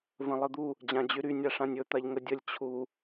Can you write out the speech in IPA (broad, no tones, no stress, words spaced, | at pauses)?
və̃lˠəd̪u | d͡ʑãd͡ʑyɾy nʲaʂãnʲɵ t̪aʎŋədʲəlʲ t͡ɕʰu